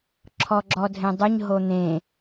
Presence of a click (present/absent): present